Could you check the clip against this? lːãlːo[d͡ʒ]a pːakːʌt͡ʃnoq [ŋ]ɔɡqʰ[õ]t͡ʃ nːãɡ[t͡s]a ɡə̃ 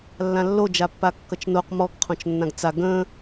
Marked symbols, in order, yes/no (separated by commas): yes, no, yes, yes